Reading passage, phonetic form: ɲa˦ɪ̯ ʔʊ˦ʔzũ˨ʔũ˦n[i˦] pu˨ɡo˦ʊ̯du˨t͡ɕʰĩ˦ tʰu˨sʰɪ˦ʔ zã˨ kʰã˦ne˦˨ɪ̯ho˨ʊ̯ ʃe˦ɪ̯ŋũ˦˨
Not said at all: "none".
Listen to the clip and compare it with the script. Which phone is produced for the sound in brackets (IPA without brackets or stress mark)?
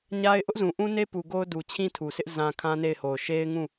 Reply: e˦